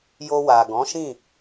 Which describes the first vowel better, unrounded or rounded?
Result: rounded